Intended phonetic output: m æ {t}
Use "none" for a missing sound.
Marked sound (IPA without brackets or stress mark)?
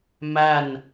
n